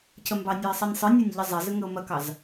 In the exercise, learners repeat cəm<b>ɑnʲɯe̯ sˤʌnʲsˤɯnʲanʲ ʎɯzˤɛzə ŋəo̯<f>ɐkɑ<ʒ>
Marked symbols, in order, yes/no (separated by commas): yes, no, no